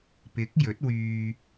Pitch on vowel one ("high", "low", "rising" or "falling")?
rising